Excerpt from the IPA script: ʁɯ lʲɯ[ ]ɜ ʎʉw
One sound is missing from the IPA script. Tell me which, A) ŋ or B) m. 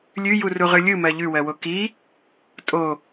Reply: B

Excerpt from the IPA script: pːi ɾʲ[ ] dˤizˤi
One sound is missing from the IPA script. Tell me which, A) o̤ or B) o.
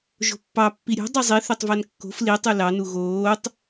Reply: A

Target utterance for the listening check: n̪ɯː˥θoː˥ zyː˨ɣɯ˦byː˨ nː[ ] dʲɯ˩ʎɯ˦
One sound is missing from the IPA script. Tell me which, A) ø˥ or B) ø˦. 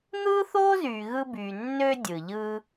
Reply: B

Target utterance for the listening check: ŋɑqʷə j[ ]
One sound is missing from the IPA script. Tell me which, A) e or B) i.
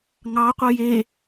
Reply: A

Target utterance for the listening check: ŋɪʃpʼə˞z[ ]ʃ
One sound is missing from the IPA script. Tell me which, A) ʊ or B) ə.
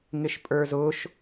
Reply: A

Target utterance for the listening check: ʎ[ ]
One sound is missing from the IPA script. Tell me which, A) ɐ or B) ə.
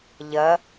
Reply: A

